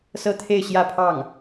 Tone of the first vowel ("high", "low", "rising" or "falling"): high